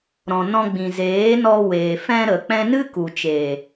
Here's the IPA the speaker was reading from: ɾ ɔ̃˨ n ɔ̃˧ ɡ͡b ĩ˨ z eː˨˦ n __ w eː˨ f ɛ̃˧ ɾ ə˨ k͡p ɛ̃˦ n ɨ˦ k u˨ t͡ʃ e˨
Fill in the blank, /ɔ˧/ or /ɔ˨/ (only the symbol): ɔ˧